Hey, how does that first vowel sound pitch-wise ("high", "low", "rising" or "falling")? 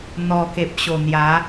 low